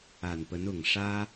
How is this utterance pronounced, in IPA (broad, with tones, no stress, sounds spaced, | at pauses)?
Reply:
a˨˩ n p ə˧˥ n ʊ˨˩ ŋ ʂ ä˥